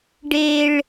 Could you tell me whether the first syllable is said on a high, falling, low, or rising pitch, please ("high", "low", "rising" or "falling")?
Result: high